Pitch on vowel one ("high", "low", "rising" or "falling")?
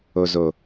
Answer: low